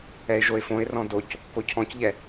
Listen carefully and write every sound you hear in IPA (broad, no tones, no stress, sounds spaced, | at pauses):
ɛ ɪ̯ ʒ o ɪ̯ f õ ɪ̯ r ɔ̃ d o c | k o cʰ ɔ̃ c ʎ ɛ